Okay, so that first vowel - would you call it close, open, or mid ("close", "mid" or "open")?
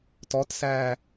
mid